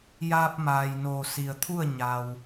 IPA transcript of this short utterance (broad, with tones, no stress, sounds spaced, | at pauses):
j aː˧ p̚ m aː˩ j n oː˩ s i˩ ə̯ t̪ʰ u˥˨ ə̯ ɲ a˩ w